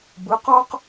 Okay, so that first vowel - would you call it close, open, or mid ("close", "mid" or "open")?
close